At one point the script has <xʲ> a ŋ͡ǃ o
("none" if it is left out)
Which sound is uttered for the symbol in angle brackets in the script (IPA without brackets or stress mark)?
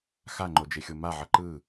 x